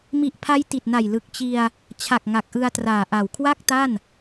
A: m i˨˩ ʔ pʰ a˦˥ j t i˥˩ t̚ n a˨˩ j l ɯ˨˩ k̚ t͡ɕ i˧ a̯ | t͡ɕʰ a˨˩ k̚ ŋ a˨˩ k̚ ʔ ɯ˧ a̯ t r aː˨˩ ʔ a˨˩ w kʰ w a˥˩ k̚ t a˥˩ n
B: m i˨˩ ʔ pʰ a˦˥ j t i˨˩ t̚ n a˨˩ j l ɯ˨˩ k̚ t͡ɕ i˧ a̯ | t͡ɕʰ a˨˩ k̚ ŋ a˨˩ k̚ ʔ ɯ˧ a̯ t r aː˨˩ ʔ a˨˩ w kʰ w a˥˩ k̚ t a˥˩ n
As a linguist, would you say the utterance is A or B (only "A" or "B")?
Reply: B